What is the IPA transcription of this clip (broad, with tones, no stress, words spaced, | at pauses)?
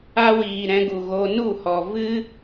a˦wiː˨ ɾɛ̃˧ɡu˨ ɣo˧ nu˦˨hɔ˨ vɨ˦